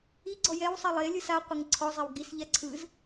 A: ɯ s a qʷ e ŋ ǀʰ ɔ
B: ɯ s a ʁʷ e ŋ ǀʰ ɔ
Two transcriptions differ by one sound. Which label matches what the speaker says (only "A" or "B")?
A